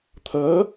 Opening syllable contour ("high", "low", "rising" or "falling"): rising